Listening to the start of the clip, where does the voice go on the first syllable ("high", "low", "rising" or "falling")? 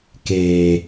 low